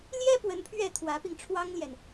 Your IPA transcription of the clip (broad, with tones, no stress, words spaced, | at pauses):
ljɛ˥ pwə˧˥npʰɥɛ˥˩ t̪ʰwä˧˥pi˧ŋʈ͡ʂʰwɑ˥ŋljɛ˨n